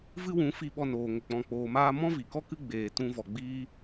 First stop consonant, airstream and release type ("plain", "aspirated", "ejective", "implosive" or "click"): implosive